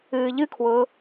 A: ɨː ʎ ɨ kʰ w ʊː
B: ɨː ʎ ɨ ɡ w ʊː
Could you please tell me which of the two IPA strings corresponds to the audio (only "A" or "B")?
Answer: A